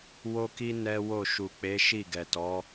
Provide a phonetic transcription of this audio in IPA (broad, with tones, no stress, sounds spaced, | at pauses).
w o˦ k i˦ n ɛ˦ w o˦˨ ʃ u˨ k͡p e˨˦ ʃ i˦˨ ɡ ɛ˨ t ɔ˨˦